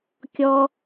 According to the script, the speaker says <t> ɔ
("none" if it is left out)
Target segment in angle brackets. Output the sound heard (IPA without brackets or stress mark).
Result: kʲ